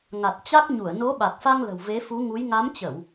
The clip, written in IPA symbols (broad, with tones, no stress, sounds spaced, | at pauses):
ŋ a˨˩ t̚ t͡ɕ a˦˥ k̚ ɲ u˧˩ ə̯ n o˨˦ ɓ a˨˩ k̚ f a˧ ŋ l ə̤˨˩ w v e˨˦ f u˨˦ ŋ u˨˦ j ŋ a˨˦ m t͡ɕ ə˧˩˨ w